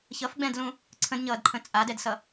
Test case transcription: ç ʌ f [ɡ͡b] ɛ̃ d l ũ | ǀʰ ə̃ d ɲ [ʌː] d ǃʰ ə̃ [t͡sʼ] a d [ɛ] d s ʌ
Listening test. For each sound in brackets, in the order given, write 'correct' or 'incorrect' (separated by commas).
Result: correct, correct, correct, correct